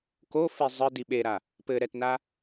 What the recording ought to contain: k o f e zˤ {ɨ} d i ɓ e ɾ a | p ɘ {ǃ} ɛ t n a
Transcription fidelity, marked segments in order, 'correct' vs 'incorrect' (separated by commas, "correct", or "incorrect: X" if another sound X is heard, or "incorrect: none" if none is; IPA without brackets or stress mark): correct, incorrect: ɾ